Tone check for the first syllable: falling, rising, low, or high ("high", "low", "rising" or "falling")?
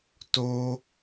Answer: high